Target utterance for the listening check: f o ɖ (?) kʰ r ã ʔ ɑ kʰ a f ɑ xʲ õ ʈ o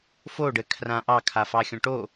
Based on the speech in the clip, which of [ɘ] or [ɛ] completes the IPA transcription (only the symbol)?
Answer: ɘ